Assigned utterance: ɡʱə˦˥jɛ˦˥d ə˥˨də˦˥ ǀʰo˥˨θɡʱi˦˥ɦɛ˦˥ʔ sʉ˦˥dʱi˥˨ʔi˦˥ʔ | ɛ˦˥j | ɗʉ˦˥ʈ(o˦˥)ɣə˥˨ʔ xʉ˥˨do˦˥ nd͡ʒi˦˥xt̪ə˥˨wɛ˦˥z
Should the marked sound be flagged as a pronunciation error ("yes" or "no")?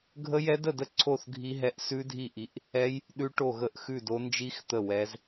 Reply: yes